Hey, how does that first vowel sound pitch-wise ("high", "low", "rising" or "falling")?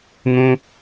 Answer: high